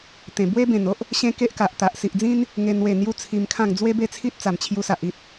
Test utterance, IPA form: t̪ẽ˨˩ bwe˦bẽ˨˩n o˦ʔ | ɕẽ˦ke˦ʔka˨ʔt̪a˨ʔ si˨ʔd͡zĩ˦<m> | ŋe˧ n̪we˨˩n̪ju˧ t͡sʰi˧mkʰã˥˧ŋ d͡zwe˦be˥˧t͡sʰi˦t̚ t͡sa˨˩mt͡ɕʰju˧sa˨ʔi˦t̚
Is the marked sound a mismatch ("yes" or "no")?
yes